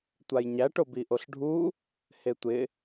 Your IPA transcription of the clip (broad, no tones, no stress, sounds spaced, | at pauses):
tʷ a j ɲ æ ʈ o b i ʔ o ɬ ɖʱ u | h e tʷ ɪ